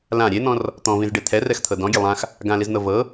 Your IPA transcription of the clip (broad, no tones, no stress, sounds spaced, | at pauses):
l ã ɾʲ e n̪ ɔ̃ r | t̪ ɔ̃ v ĩ z ɖ e t̪ʰ ɛ r ɛ x t̪ʰ ɤ d ɔ̃ ɡʲ ɛ lˠ ã x | ɡ ã l i z n̪ ɤ v ɤ